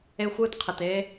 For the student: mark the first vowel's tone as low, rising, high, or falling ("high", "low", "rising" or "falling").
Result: high